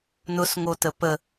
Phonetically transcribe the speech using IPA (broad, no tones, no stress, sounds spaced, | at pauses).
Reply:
n ʊ s ŋ o t ə p ə